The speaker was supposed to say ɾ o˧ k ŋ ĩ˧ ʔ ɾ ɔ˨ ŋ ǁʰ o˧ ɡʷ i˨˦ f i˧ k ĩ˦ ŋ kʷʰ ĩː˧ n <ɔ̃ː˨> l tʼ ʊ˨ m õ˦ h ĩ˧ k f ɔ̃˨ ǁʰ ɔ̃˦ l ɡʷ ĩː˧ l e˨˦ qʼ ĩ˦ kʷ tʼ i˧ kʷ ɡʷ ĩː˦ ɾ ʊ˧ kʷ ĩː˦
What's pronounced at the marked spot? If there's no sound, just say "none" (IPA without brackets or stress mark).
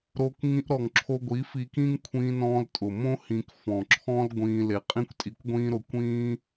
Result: ɔ̃ː˧